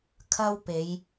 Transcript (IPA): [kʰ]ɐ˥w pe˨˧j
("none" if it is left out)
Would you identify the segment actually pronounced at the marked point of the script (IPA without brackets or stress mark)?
kʰ